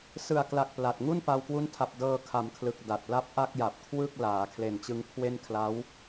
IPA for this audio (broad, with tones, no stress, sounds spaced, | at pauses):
s ɯ˨˩ a̯ k l a˨˩ k̚ p l a˨˩ t̚ ŋ u˥˩ n p a˧ w k w u˦˥ n tʰ a˨˩ p̚ d ɤː˧ kʰ a˩˦ m kʰ l ɯ˨˩ k̚ d a˨˩ t̚ l a˥˩ p̚ ʔ a˥˩ k̚ j a˨˩ p̚ kʰ w ɯ˥˩ k̚ l aː˩˦ kʰ l e˨˩ n t͡ɕ ɯ˧ ŋ kʰ w e˥˩ n kʰ l a˦˥ w